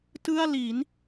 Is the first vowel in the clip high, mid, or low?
high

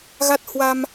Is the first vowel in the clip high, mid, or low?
low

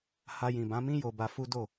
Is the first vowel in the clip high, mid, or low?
low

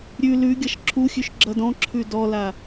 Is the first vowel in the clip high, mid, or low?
high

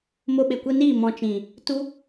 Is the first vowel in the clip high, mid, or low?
mid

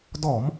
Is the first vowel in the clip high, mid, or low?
mid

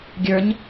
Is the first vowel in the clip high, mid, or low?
mid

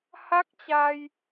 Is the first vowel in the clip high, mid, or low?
low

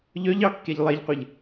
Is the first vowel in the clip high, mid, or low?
mid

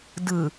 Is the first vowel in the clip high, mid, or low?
high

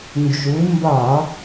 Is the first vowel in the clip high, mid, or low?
high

